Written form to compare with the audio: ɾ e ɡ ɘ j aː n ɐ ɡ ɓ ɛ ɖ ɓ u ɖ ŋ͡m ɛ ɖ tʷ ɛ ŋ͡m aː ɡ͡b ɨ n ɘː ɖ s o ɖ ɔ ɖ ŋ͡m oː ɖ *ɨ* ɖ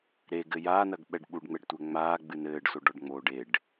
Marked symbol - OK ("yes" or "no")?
no